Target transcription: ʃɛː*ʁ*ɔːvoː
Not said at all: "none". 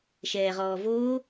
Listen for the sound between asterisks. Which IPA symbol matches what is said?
ʁ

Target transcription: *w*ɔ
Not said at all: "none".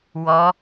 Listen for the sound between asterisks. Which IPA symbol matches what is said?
w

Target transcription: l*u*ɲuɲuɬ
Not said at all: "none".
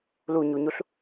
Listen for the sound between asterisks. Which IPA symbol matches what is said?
u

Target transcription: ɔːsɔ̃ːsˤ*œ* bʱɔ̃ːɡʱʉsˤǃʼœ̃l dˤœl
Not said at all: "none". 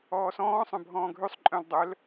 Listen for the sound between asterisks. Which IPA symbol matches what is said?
œ̃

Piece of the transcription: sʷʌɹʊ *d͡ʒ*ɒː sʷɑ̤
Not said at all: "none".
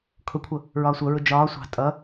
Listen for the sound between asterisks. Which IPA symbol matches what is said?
d͡ʒ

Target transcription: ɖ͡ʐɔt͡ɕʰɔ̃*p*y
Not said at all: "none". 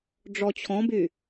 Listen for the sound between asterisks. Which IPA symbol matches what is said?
b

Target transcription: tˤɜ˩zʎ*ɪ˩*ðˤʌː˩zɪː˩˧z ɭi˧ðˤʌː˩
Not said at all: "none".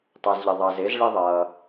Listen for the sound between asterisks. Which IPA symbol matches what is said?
ɪ˩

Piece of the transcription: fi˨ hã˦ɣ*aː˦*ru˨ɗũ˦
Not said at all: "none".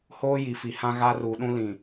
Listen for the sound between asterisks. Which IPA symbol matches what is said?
a˦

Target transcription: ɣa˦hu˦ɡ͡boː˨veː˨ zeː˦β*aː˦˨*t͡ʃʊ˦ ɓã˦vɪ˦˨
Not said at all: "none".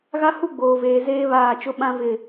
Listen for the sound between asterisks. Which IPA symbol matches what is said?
aː˦˨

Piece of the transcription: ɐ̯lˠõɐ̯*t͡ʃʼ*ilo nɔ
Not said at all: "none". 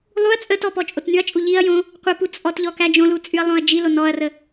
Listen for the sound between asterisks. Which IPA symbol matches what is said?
d͡ʒ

